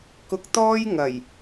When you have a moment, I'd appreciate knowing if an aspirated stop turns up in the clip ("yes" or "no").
no